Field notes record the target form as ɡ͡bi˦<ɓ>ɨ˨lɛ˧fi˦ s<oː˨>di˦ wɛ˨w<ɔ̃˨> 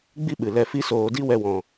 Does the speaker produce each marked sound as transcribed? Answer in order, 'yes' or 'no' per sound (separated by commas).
yes, yes, yes